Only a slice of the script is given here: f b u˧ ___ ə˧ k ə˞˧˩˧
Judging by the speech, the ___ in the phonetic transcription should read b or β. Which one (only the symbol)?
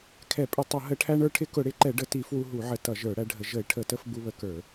β